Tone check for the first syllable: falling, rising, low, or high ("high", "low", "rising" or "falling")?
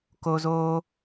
high